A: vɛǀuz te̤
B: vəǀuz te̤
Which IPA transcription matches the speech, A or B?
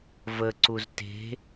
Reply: B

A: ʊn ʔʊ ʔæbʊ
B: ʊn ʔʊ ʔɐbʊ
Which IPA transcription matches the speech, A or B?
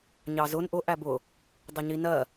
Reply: A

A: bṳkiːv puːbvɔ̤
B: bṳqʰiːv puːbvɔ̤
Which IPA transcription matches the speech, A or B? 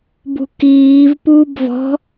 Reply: A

